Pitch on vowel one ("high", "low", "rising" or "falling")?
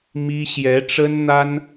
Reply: high